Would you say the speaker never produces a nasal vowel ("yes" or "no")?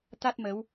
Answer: yes